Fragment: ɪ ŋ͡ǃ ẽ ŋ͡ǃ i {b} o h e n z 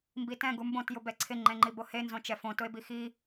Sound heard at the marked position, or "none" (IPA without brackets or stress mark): b